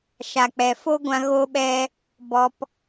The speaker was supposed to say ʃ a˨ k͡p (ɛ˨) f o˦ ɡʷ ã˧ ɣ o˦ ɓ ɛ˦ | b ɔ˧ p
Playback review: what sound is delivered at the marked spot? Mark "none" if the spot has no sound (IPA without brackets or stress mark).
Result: ɛ˨